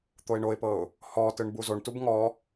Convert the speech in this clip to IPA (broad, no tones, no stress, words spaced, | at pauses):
t̪oɪ̯ɳoɪ̯pɤʊ̯ | hɔtɯɳ buzoɳtub ŋɔ